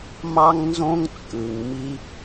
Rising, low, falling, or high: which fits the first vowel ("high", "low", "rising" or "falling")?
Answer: high